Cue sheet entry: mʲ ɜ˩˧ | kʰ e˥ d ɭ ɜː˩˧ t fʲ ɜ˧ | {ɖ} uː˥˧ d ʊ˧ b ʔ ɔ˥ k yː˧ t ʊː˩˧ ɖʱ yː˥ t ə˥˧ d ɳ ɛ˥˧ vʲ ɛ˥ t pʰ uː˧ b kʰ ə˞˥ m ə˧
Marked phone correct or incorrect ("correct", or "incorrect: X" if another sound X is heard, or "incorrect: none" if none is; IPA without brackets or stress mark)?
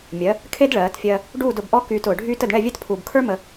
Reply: correct